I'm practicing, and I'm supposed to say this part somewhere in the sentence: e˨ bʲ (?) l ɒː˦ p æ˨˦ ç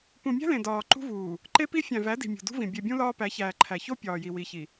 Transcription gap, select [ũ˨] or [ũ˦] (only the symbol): ũ˦